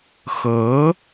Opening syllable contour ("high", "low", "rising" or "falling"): rising